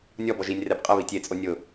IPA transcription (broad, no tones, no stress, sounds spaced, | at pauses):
nʲ ɔ b ɔ ʒ i nʲ r ɛ b qʼ ə β i tʲ e t͡sʼ o nʲ ʊ